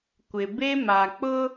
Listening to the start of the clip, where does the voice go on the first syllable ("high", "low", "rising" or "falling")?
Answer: low